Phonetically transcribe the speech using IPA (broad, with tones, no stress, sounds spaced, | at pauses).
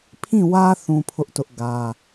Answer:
pʰ ĩ˦˨ w ä˦ θ ũ˦ pʰ ʊ˦ ʔ t ʊ˦ ʔ ɡ ä˦